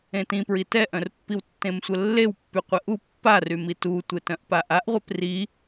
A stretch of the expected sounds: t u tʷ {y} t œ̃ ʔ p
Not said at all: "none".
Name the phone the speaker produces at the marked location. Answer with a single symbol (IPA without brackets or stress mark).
e